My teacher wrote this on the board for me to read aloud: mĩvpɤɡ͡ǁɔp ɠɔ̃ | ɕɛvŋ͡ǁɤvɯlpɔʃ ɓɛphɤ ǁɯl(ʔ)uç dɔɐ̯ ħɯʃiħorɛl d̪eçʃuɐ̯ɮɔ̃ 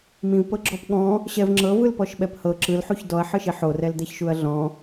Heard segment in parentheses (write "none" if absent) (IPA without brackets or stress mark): ħ